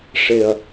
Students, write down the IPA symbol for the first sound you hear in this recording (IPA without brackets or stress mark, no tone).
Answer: ʂ